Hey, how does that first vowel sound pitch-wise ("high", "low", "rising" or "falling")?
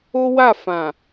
high